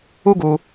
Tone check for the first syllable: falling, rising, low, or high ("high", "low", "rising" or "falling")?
high